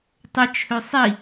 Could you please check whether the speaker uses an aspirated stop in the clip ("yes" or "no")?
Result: yes